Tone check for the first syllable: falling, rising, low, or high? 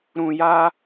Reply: low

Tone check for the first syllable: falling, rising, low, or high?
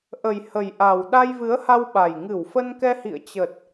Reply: low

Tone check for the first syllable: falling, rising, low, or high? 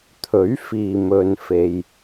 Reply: rising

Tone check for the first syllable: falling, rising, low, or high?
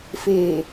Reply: low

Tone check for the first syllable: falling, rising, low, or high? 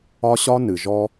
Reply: high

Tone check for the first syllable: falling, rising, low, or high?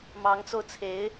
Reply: rising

